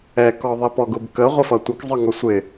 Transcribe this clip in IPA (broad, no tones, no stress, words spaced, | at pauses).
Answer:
ɛkɔ ðˤipɔɡʊbkə ʁʷəfʌtʷʌk zˤə˞ŋɔsʷɪ